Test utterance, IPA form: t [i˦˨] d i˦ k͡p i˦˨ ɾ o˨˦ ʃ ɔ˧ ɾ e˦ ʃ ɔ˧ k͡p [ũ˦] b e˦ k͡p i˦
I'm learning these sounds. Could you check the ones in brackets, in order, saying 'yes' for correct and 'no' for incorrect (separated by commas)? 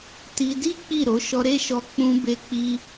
no, no